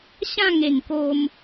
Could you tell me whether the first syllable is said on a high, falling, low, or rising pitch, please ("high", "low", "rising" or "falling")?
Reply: falling